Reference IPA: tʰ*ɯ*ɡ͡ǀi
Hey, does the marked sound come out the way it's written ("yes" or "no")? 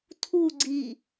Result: no